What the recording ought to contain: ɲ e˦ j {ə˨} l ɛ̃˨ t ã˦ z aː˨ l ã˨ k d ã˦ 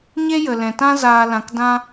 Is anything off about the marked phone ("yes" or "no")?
no